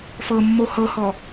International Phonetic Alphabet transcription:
f ɤ mː o h ɤ h ɔ

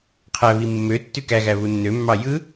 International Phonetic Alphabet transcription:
qʰ æ β i mː ø tː y k æ ɣ æ β u nː ø mː ɑ j ɯ

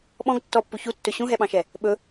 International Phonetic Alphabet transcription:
ɓ ɔ̃ ɡ tː ɔ pː u ç u tː ɵ ɕ ũ ɦ ɛ ɓ ɑ̃ ʃ ɛ | ɓ ɵ

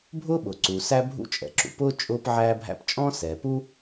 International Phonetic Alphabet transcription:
bʱ ʊː˥ ɓ ʊː˩ ǀ uː˩ s æ˥ bʱ ṵ˥ t͡ʃʼ ɛ̰˩ ǁ ṵ˩ p ʊː˥ t͡ʃʼ ʊː˥ p ʕ æː˥ bʱ æ̰˥ p t͡ʃʼ ɔ̃˥ s ɛː˩ p u˥

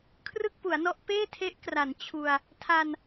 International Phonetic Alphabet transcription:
kʰ r ɯ˥˩ k̚ p u˩˦ a̯ n ɔ˦˥ ʔ p eː˥˩ tʰ e˦˥ ʔ k r a˩˦ n t͡ɕʰ u˧ a̯ | tʰ a˧ n

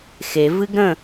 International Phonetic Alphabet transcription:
x e v ɨ ɡ ɾ ə̃

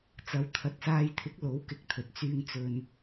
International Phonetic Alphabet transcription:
t͡s ɐ˨˥ w t̪ʰ ɐ˨ t̚ s aː˧ j t̪ʰ ɪ˨˥ k̚ l o˨˥ w k ɪ˨˥ k̚ t̪ʰ ɵ˨ t̚ t͡s yː˧ ŋ t͡s ɵ˧ n

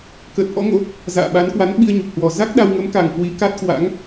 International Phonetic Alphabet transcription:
k əː˨˩ t̚ ʔ ɔ̰˧˥ ŋ o̰˧˥ | z a̰ː˧˨ ɓ a˨˦ n k w a˨˦ n ɓ i˧ ə̯ ɲ o˨˩ p̚ h w ɔ˨˩ z a˦˥ k̚ ɗ a˧ w ŋ ə˨˦ m k a˨˩ ŋ k w i˨˦ k a˦˥ t̚ k w a̰˧˥ ŋ

